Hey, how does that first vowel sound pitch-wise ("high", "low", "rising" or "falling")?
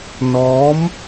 rising